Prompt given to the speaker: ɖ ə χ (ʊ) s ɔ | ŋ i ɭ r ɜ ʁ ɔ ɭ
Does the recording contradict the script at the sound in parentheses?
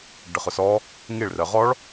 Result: no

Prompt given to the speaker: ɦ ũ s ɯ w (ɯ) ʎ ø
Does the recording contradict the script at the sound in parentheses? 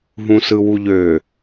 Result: yes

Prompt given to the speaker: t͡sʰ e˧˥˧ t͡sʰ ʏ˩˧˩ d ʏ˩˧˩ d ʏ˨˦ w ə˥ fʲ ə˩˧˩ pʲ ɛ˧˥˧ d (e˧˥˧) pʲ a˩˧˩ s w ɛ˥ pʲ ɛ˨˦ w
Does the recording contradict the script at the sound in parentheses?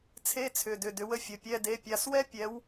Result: yes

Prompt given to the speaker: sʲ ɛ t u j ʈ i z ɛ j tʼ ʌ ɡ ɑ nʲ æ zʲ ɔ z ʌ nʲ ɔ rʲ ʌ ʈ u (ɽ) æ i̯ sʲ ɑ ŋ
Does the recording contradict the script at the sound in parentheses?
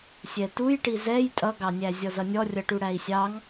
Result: no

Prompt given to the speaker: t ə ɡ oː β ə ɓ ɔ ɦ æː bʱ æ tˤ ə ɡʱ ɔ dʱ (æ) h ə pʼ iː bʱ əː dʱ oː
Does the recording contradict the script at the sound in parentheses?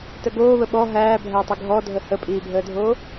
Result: yes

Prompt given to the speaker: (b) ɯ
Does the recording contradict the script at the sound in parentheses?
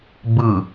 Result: no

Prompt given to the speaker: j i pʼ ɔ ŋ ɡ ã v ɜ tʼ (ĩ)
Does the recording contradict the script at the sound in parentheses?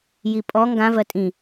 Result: no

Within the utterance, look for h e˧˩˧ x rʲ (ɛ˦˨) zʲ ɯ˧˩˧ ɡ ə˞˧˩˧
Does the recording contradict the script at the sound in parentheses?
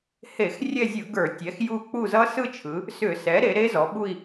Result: no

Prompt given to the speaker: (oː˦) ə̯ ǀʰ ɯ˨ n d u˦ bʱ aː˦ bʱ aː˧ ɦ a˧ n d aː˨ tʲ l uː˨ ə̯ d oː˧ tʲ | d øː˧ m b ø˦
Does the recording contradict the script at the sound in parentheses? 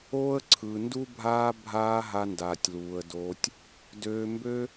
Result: no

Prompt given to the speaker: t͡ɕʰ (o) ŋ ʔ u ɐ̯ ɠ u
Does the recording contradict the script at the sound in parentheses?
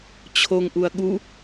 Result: no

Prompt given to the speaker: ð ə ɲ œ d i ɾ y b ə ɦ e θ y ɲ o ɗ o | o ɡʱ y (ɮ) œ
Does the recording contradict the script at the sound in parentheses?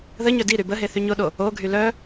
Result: yes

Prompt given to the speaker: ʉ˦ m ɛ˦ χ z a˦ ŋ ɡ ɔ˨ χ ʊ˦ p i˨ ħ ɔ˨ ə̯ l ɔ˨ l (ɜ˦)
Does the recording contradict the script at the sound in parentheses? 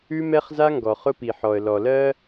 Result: no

